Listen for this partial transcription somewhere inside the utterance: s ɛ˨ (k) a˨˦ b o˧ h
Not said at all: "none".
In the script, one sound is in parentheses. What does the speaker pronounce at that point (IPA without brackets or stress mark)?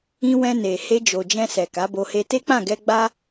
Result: k